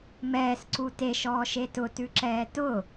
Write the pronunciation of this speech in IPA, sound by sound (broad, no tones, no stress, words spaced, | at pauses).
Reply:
mɛːsǀu teʃɔːʃe tʊtʉǁɛː tʊ